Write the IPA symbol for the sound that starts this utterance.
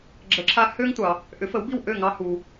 ɡ͡ǁ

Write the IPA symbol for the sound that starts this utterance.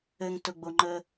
ɘ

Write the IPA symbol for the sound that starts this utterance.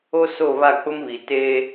o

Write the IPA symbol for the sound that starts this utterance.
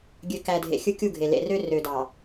ɡʲ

